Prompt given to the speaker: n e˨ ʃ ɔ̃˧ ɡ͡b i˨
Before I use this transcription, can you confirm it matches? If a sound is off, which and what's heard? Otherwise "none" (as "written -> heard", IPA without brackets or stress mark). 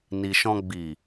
e˨ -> i˨